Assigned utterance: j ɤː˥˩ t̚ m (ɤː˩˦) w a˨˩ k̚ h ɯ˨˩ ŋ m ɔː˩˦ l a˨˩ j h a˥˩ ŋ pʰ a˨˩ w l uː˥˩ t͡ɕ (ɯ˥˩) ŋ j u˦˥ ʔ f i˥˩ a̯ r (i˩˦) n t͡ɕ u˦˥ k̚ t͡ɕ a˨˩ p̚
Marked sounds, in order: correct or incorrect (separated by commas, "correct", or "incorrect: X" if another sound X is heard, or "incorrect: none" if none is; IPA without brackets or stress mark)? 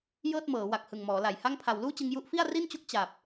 correct, incorrect: ɯ˧, incorrect: i˥˩